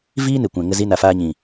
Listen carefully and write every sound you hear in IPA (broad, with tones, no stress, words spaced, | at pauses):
viː˦ ne˨kʷɛ̃˨ŋə˧ zi˦na˧ faː˧ɲĩ˨